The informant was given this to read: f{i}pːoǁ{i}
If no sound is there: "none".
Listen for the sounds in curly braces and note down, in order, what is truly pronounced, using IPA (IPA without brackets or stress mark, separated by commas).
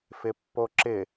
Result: ɪ, ɪ